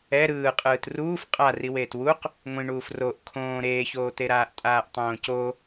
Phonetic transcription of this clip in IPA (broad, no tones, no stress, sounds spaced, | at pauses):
ɛ ɾ ɯː qʼ ɯː t r uː f qʼ a r i w eː t w u q | ŋʷ ĩ ɳ uː f r o ʔ kʰ õː ɾ eː ç oː t̪ e ɾ aː ʔ tʼ aː ʔ tˤ õː c o